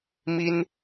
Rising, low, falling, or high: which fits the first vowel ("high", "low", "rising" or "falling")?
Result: high